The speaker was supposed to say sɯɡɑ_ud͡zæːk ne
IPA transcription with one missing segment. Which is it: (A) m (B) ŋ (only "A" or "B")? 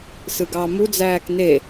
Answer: A